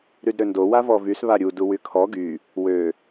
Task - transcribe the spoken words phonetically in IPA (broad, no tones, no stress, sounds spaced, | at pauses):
ɾ y d ɾ ø n d o w a v ɔ v y s β a ɾʲ u d u w y kʰ ɔ ɡ y | w ø